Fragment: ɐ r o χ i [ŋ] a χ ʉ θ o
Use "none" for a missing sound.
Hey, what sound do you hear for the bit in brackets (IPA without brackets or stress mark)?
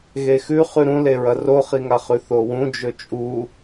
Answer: ŋ